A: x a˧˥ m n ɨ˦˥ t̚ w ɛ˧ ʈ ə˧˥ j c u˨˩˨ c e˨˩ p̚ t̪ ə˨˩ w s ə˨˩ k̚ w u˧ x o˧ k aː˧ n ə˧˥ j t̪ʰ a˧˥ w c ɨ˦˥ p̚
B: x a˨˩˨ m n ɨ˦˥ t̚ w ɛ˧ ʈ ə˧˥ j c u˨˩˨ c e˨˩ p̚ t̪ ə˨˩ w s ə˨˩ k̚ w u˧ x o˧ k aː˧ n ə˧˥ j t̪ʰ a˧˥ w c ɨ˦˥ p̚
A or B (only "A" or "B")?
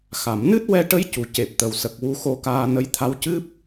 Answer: B